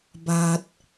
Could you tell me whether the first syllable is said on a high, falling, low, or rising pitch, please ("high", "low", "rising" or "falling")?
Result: low